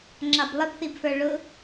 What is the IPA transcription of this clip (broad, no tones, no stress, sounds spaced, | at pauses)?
ŋ͡ǁ ɑ b lˠ ɪ b θ i b f ə˞ ɭ ʊ